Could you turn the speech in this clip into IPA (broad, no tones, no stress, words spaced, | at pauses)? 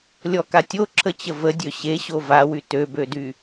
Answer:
lʲɔkatʲo ǁʰət͡ɕəvə dʲøɕeɕo vawy tøbødy